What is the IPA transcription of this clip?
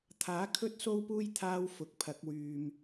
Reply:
t̪ʰaː˨˥kʰɵ˥t̚so˥wpuː˥j t̪ʰaː˥w fʊ˨k̚pʰɐ˨˥k̚wyː˨m

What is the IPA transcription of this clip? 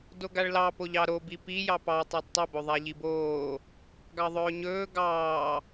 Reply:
doɡaɭlɑ poʎɑɾo bipi jɑpɑ tˤadtˤɵ boðˤaʎiboː | ɡɑðˤɵːɲɵː ɡɑː

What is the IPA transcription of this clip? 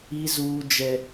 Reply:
i˦zuː˦ d͡ʒɛ˦

